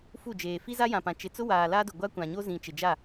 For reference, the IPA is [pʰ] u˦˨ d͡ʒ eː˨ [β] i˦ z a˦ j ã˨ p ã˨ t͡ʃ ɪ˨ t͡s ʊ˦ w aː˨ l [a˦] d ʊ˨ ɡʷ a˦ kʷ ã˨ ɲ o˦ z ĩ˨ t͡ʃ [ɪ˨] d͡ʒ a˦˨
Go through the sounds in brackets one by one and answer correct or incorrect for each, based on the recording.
incorrect: f, incorrect: f, correct, correct

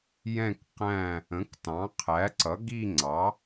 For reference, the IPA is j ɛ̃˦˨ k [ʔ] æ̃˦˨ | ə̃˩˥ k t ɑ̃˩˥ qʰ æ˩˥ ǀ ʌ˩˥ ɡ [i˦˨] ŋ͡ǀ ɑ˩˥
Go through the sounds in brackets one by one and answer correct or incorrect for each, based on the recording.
incorrect: q, correct

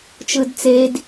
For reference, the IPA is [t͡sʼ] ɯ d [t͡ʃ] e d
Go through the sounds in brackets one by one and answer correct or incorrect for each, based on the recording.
incorrect: t͡ʃ, incorrect: t͡s

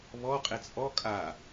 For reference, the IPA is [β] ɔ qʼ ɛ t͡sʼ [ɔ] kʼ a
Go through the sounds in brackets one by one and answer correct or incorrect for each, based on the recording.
correct, correct

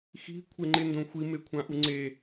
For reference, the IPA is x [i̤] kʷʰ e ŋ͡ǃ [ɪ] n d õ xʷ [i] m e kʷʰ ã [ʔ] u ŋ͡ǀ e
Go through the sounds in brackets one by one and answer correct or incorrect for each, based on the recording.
correct, correct, correct, correct

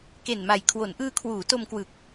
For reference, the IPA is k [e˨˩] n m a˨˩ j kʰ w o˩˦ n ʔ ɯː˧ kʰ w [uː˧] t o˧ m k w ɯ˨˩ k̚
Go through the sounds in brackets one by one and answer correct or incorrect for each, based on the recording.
correct, incorrect: uː˩˦

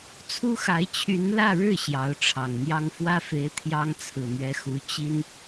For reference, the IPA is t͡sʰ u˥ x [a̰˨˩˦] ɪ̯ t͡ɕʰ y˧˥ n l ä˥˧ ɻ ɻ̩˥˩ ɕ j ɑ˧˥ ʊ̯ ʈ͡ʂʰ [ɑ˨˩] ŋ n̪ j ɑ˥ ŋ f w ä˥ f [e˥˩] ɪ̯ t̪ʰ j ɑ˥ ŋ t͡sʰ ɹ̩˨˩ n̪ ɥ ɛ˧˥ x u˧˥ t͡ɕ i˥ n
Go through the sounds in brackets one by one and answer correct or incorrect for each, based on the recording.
incorrect: a˧˥, correct, incorrect: e˧˥

